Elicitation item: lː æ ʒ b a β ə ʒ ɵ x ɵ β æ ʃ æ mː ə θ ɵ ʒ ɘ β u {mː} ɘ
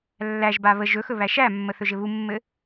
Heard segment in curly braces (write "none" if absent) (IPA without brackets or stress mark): mː